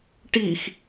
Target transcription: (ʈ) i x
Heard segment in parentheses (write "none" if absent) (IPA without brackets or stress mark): ʈ